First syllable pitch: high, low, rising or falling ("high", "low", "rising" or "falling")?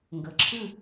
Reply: low